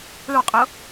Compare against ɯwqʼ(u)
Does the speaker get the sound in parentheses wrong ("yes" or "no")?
yes